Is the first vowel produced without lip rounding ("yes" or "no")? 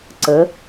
yes